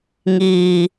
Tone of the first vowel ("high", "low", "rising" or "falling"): low